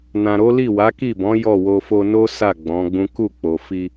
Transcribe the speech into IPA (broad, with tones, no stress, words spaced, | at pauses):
nã˨ɾo˨˦ li˦˨wa˨˦ki˦˨bɔ̃˨˦ jɔ˦˨wo˧ fo˧no˦ sa˦˨ ɡ͡bɔ̃˨˦ɡ͡bũ˦ ku˦˨k͡po˨fi˧